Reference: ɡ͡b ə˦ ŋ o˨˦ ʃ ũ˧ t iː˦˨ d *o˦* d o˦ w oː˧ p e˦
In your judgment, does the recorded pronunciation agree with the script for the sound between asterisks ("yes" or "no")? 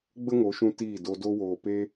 no